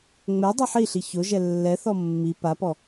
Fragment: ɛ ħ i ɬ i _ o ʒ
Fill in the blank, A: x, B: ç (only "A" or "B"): B